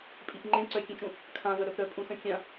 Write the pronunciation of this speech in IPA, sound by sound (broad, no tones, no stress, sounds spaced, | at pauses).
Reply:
pʼ i p ŋ͡ǃ ẽ ǀ œ kʲ ẽ t͡ʃ ũ | kʰ ã v œ ɾ œ p ɾ œ pʼ ũ s œ̃ kʲ ã